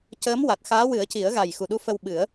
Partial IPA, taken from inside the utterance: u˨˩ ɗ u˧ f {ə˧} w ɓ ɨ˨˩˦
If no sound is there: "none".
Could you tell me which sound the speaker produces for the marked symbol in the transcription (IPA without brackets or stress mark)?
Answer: ə˧